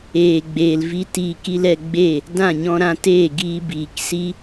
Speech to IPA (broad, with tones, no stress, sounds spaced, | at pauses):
eː˨ ɡ͡b eː˨ l v i˦ t iː˧ k i˦ l ɛ˧ ɡ͡b e˦˨ | d ã˦˨ ɲ ɔ̃˧ ɾ ã˧ t eː˦˨ ɡ iː˧ b iː˨ k s i˦